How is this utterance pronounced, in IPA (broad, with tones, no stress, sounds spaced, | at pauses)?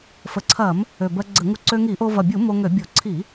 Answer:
f ə˨˩ ǀʰ ɐ˧˩˧ m | ø˨˩ b ɜ˧ ɡ͡ǀ ə˧˩˧ ŋ u˧ ǀ ø˧ ŋ i˧˩˧ ʔ o˧ v ɐ˨˩ bʲ u˧˩˧ m o˧ ŋ ø˧˩˧ bʲ o˧˩˧ ǀʰ i˧˩˧